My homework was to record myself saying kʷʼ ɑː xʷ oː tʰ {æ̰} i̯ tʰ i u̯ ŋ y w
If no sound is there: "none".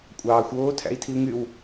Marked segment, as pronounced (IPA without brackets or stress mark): æ̰